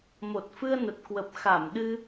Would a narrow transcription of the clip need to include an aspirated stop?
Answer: no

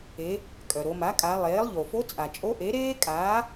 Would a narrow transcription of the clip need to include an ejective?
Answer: yes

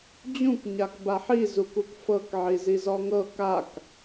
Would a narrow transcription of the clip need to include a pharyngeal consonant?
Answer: yes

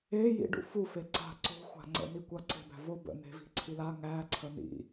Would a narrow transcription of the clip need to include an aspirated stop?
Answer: yes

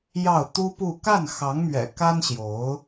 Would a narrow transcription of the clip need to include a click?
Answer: no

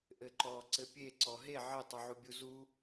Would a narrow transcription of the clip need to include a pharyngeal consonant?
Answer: yes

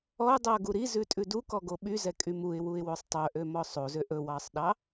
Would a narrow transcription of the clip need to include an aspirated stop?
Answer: no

